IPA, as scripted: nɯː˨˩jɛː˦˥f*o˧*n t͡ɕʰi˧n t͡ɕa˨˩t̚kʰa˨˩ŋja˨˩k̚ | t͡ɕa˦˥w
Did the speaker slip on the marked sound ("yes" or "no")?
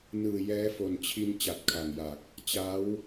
yes